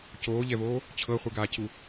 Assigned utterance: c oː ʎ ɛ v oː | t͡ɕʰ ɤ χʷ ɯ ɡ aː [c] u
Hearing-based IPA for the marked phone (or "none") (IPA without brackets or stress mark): c